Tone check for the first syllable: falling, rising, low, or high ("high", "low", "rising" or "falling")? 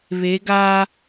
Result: rising